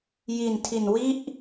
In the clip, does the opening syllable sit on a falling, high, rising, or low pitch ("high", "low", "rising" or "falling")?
low